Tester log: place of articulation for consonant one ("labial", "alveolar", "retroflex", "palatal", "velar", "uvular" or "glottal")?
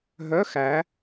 glottal